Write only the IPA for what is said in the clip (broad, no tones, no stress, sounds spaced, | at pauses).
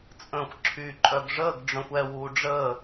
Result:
t͡sʼ ə̃ xʷ ǁʰ y ǃʼ œ ɡ ʐ əː ɡ ɖ͡ʐ œ̃ xʷ ɛ w uː ɖ͡ʐ əː